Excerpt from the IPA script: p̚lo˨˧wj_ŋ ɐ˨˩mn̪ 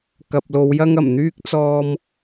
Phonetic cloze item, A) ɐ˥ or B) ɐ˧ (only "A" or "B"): A